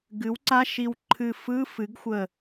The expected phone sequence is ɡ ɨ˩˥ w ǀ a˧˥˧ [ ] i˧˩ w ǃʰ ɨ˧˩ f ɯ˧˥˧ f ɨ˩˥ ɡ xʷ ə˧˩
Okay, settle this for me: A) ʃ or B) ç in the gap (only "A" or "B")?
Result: A